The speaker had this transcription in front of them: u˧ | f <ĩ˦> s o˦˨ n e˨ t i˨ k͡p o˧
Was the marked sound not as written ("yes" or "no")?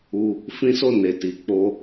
no